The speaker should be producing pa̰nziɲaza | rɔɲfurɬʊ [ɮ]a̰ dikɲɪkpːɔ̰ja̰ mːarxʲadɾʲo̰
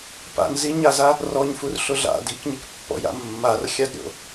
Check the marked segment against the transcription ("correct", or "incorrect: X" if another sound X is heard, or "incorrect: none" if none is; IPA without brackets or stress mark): correct